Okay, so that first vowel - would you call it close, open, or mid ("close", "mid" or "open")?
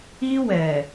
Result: close